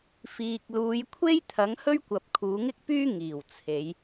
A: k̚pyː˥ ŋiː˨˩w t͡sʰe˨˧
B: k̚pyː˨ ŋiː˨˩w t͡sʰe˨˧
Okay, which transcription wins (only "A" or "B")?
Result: A